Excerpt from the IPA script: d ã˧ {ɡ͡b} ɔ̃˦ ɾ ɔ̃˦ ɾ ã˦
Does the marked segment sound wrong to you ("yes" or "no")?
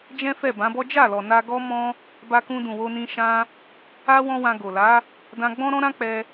no